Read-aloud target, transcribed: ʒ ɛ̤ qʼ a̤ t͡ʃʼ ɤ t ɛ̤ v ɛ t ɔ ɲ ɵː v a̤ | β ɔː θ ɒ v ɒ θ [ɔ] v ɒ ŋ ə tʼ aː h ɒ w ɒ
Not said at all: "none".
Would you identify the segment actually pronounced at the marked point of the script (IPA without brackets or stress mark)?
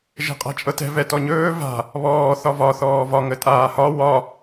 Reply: ɔː